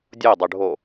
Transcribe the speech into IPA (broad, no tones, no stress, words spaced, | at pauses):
dʲodˤɵɖʱo